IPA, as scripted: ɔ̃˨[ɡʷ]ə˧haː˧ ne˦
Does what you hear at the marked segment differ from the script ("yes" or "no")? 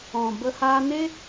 yes